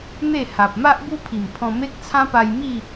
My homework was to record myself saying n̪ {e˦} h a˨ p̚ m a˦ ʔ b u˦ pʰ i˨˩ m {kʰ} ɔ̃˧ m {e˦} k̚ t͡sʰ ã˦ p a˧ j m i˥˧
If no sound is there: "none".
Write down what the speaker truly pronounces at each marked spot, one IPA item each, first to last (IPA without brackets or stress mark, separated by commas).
e˥˧, pʰ, e˦